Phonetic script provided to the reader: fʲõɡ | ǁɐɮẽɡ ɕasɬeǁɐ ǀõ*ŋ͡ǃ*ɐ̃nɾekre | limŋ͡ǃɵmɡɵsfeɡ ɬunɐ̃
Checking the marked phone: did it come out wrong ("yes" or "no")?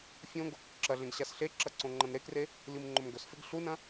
no